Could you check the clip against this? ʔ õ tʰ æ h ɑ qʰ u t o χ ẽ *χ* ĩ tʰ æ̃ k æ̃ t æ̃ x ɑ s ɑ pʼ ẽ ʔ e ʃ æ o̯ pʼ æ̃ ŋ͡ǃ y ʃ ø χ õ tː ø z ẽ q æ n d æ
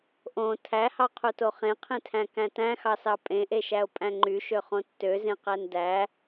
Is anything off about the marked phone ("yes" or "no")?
yes